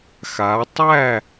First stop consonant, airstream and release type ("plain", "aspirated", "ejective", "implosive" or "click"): plain